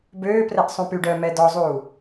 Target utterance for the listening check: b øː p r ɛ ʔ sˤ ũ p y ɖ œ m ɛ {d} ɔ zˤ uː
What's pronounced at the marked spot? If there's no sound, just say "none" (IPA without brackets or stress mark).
d